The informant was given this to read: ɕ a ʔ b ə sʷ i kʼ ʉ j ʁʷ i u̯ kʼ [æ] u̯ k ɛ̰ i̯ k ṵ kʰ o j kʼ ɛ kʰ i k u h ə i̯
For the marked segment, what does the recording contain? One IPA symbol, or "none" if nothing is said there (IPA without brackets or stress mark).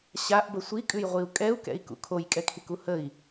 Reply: ɛ